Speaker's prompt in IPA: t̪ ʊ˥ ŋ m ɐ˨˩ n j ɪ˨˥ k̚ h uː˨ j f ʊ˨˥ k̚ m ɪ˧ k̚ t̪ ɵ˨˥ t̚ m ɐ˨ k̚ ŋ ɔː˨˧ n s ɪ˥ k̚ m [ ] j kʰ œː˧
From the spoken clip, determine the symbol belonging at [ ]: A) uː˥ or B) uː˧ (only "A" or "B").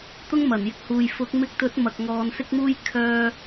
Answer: A